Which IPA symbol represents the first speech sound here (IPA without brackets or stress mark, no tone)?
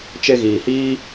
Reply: t͡ʃ